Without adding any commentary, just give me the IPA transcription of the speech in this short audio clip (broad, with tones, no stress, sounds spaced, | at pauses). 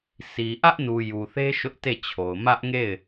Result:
s i˨ ʔ ä˦ ʔ n u˨ j u˨ θ e˦ ʃ ʊ˦ ʔ t e˦˨ t͡ɕʰ o˨ ʊ̯ m ä˦ ʔ ŋ e˦˨ ɪ̯